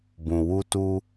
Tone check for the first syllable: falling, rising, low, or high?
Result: low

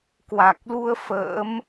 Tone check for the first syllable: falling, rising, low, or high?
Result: low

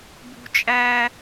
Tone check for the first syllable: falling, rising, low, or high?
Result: high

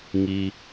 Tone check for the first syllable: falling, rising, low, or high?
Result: low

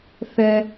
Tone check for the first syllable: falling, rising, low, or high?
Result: high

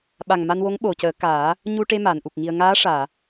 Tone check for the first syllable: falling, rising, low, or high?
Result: low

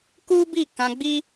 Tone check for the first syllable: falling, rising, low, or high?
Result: high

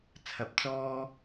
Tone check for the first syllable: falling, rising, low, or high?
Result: low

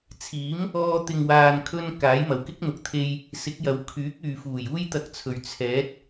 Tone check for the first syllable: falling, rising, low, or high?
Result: rising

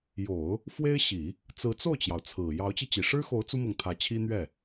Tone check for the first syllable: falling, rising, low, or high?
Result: low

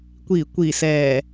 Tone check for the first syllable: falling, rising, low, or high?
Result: low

